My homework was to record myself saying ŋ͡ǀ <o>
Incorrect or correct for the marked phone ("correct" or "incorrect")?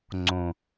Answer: incorrect